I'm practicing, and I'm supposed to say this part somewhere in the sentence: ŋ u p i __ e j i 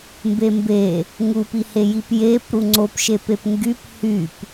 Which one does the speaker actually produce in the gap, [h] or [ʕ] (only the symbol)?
h